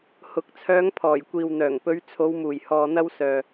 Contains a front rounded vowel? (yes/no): yes